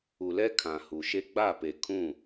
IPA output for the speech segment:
u˨ l ɛ˦ kʰ ã˨ h u˨ ʃ e˦ ɡ͡b a˦˨ p e˨ kʰ ũ˦˨

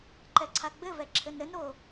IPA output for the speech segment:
ǃ ɛ ǀʰ a ɡ͡b ɘ v ɛ ǁʰ ɘ n ɾ ɘ n ɾ o

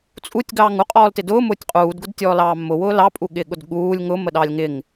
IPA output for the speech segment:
t͡sʼ u tʲ ɡ ɑː ŋ u qʼ ɔː l t ɪ d ʊː m ʊː tʲ qʼ uː d ɡ ʊ d tʲ ɔː l ɑː mː ʊ w ʊː l ɑ pʼ u ɠ ɪː ɠ ʊ d ɠ uː lʲ ŋ ʊ m ə ɗ ɑ lʲ ŋ ɪ ŋ

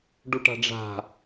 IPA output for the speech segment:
ɖ u ʈ a̤ ɖ͡ʐ a̤

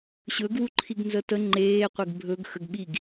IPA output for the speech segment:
ɕ ɵ ɡ w u ǃʰ i ɡ n z ə t ə ŋ͡ǃ eː qʷ e ɡ bʱ ɵ ɡ x ə ɡ ɓ i ɡ

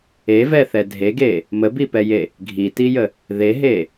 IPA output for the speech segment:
e v ɛ θ ɛ dʱ e ɡ e | m ə b i p ɛ j e | ɡʱ i t i j ə | ð e ɦ e

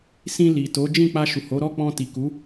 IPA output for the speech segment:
s ĩ˧ l i˨ t o˨˦ d͡ʒ ĩ˦˨ k͡p a˧ ʃ u˨ h o˨˦ ɾ ɔ˦˨ k͡p ɔ̃˧ t i˨ k u˨˦

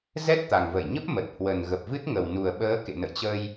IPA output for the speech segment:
z ɛ˦˥ t̚ t̪ a˨˩ ŋ v ə˧˩ j ɲ ə˦˥ p̚ m ə˨˩ t̚ h w ə˨˩ n ɣ ə˨˩ p̚ v ɨ˦˥ t̚ ŋ ə˨˩ w n u˨˩ ə̯ ɓ əː˨˦ k ḛ˧˨ n ə̰˧˨ j t͡ɕ ə˧ j

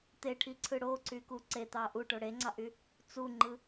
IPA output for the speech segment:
t̪ e ʈʰ i ǀʰ ɯ ɽ o ǀ y k u ǀ e t̪ ɑ ʔ u ʈ o ɽ e ŋ͡ǀ ɑ ʔ y | t͡s u ŋ͡ǃ ɯ

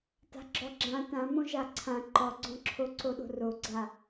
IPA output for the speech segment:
t a̤ ɡ͡ǁ ɔ ɡ͡ǁ ã t ã m õ ʒ a ǀʰ ã ǃ ɔ ɡ͡ǀ ɔ̃ ǁʰ o ǀ o ɗ o̤ r o ɡ͡ǀ a

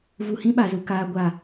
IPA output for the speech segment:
v u˨ h ĩ˦ ɓ a˨ z u˨ k aː˨ ɡʷ a˨

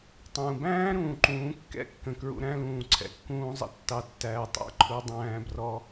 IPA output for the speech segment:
tˤ ũː˩ b æ̃ː˥ ɾ ũː˩ ǃ ũː˩˧ kː ɛ̰˥ kː ə̃˩ k ɹ ṵ˧ ɾ æ̃˥ l ũː˩ ǀʰ ɛ̰˧ kː ũː˥ zˤ ə̰˧ tː ɑ˧ tː æː˧ tˤ æ̰˧˥ ǃʰ u˧˥ dˤ æ̃ː˧˥ b r ɔ˧˥

